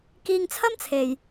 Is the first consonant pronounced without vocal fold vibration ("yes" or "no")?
yes